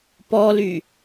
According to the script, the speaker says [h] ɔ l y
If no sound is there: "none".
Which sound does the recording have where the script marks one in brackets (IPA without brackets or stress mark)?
p